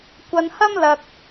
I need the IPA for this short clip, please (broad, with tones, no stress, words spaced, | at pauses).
kʷɐ˧nhɐ˥mlɐ˧k̚